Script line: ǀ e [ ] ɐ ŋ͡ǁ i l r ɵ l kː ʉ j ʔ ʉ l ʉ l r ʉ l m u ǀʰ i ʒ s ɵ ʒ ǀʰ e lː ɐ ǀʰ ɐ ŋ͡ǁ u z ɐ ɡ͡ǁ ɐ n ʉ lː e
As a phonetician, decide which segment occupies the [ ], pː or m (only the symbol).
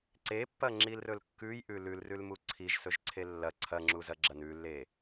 pː